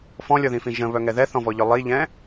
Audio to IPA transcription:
f ɔ̃ lʲ ɔ ð ĩ f ĩ ʒ ə̃ β œ ŋ ɛ ð ɛ θ ɔ̃ v ɔ ʎ œ lˠ i ʎ ɛ̃

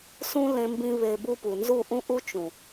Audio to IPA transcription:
s ũ˦ l ẽ˧ m b ĩ˧ β e˨ b u˧ p u˨ n z u˦˨ ʔ ũ˦ ʔ u˦ t͡ʃ ũ˨

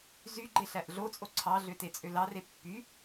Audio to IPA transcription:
z y ɡ͡ǃ e ɬ æ ʔ ɮ o t͡sʼ o ǀʰ ɑ ɮ ø t e t͡sʼ ø l ɑ r e pː y

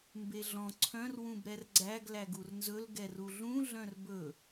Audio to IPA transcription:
m b e ɮ ɔ̃ ǀʰ œ̃ r w ũ b ɾ ɛ r ɡ͡ǀ æ ɡ l æ ɡ u r n z ɵ l ɡ ɛ r u ɮ ũ ɮ œ̃ r b ɵ

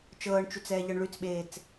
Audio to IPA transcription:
t͡ʃ ɤː ɳ t͡ʃ y t͡s ɛː ʎ ɤ ɳ ɭ y t͡s ɓ eː t͡s

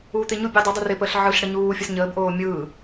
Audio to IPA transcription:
uː t̪ ɪ ɲ u bʲ ɯ dˤ ɪ dˤ u r ɪ p əː ɬ ʕ ɯ ɬ ɽ ə ɲ uː fʲ ə s ɲ əː b ʔ oː mʲ ɯː

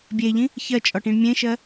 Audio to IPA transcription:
bʲ e ʎ ĩ | ç ɜ t͡ʃʼ ɔ ʈ ĩ ɳ mʲ ẽ ʃ ɜ

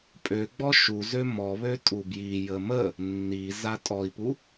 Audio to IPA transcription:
pʼ ø ɡ͡b ɔ ʃ u z ø m ɔ β ø tʼ u b j i j ə m ə | nː i z a tʼ ɔ i̯ p u

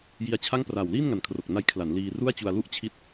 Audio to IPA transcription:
j i˧ a̯ t͡ɕʰ a˥˩ ŋ p r aː˨˩ w l iː˥˩ n ŋ a˨˩ n kʰ r o˨˩ k̚ n a˧ j kʰ l a˩˦ n l iː˧ r u˥˩ a̯ t͡ɕ u˧ a̯ l u˦˥ ʔ t͡ɕʰ i˦˥ t̚

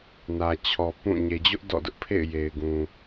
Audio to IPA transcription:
n ä˨ t͡ɕʰ ɔ˨ p ũ˦˨ ɲ e˨ d͡ʑ ʊ˦ ʔ d ɔ̰˦˨ d ʊ˦ ʔ pʰ ḛ˦˨ ɪ̯ j e˨ ɪ̯ ɡ ũ˨

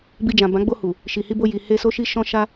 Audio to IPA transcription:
b i˧ d͡ʒ ã˨ b ã˨˦ ɡ͡b o˧ h u˨ | ʃ i˨ h i˧ b o˧ j i˨ h e˧ s o˧ ʃ i˧ ʃ ɔ̃˦ ʃ a˦

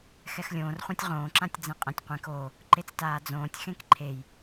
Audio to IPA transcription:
x ɛ x lʲ õː r χʷ ã tʲ ʁ õː ǁ ã tʲ d͡z ẽ qʼ ɛ̃ tʲ qʷ ẽ k o | ǃ e t͡s t aː d͡z õː tʲ x ẽ k ǃʰ e j

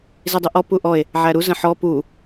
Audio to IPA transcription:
z i dˤ i ʔ ɔ p u ʔ ɔ e̯ | ʕ æ ɾ u z ə̃ ħ ɔ p u

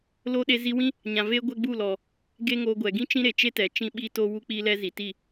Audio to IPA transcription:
l o˧ ɗ e˧ z i˧ w ĩ˦ | ɲ ã˨ v e˦ ɡʷ ɛ˦ ɡ͡b u˦˨ l ɔ˨ | ɡ e˦ ŋ o˧ ɡʷ ɛ˨ ɡ ĩ˦ t͡ʃ ĩ˦ ɾ e˨ t͡ʃ e˦ t ɛ˨ t͡ʃ ĩ˦ ɓ iː˦ t o˦ w u˦ k͡p i˦ l ɛ˦ z i˨ t i˦˨

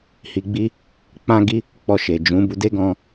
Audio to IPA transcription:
h i˨ ɡ͡b i˧ | k͡p ã˧ ɡ i˧ | k͡p ɔ˧ ʃ e˨ d͡ʒ ũ˨˦ b u˧ d e˦ ɡ ɔ̃˧

